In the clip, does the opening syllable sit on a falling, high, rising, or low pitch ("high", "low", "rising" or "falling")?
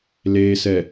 low